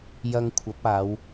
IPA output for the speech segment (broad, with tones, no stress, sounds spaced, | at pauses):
j ɐ˧ ŋ kʷʰ ɐ˨˥ p̚ aː˨˧ w